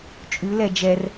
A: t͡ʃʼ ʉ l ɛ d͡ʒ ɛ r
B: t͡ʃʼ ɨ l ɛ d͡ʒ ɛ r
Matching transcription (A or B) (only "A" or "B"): A